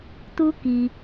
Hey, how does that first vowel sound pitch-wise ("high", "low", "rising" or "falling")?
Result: high